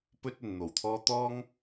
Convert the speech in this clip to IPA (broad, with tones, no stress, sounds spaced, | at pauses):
p ɵ˥ t̚ ɵ˨ n n̪ o˨˩ w t̪ʰ ɔː˥ t̪ ɔː˥ ŋ